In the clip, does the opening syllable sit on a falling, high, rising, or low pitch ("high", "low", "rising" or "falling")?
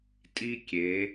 high